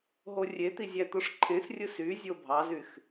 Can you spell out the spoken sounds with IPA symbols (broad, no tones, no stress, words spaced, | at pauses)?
ɦorʲet̪i zʲæt̪oʂǃʰẽsrʲɯ syzʲo bʱɑzyx